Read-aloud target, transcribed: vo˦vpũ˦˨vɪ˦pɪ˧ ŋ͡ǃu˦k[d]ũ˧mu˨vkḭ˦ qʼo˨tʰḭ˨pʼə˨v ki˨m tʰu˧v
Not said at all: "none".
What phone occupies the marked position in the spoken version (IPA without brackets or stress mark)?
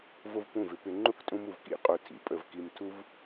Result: tʼ